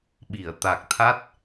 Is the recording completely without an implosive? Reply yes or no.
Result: no